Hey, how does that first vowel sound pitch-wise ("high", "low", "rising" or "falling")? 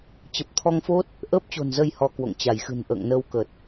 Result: low